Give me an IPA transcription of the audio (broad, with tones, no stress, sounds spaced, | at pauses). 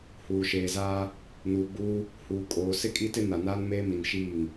h uː˨ ʃ eː˨ z aː˦ | n uː˨ ɡ͡b uː˦ | h uː˨ kʼ oː˨ s ɪ˦ kʼ i˦ t ɪ˦ n a˨ n aː˦ n m eː˦ m i˨ n ʃ iː˦˨ ŋ